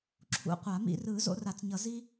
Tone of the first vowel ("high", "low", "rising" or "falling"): high